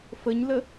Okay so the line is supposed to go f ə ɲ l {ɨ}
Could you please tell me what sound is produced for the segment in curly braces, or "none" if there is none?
ə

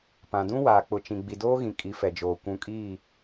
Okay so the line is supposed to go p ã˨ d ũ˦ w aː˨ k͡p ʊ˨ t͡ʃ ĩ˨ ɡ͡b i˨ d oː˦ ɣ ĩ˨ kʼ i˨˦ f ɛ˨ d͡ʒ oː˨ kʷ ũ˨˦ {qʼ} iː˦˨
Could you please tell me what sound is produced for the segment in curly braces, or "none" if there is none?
kʼ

